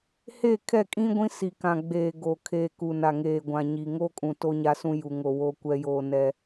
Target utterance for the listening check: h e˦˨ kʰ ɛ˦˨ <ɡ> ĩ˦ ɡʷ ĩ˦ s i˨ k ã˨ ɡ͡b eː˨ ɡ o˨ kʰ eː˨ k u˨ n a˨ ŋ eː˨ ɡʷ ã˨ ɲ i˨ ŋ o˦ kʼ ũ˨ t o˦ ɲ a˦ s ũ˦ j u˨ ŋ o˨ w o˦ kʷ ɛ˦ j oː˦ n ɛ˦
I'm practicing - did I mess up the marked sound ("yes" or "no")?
yes